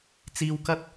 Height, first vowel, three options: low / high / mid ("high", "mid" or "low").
high